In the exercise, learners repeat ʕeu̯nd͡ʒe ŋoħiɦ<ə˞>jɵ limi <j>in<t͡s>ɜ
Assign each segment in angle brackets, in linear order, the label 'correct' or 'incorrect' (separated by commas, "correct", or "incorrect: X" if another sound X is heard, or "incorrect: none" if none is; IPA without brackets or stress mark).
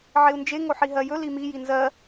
incorrect: ɜ, correct, incorrect: z